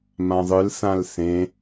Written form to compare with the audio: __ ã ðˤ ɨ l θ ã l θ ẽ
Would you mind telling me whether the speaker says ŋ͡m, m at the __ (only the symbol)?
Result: m